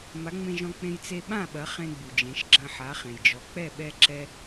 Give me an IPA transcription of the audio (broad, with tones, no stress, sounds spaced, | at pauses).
m a˩˥ ŋ͡m ẽ˧ ʒ ɔ̃˧ k͡p ẽ˧ j t͡s e˧ ɓ ã˥˩ ɓ ɐ˩˥ χ ẽ˧ ɡ͡b u˩ d͡ʒ ẽ˩˥ ʃ ɡ͡ǁ ɐ̃˧ ħ a˩˥ χ ẽ˩ j d͡ʒ ɔ˩˥ k͡p ɛ˥˩ ɓ ɛ˥ ǁ ɛ˥